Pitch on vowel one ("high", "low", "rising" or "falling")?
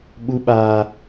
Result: high